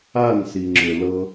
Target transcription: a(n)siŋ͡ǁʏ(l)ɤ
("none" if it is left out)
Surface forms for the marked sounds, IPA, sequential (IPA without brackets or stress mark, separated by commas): n, l